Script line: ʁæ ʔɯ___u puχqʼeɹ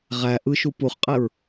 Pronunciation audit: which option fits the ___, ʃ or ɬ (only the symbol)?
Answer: ʃ